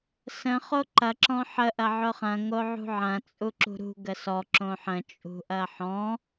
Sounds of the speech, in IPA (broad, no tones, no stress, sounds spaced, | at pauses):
s ə̃ χ o ǃ ɐ ǁ ɔ̃ ħ ə ʔ ɐ ʕ ʊ χ ɐ̃ ŋ o ʕ ṳ ʕ ɐ̃ t͡sʼ u ǁ ṳ ɾ ṳ ɡ ə s ɔ ǁ õ ħ ə̃ t͡ʃʼ ṳ ʔ ɐ ħ ɔ̃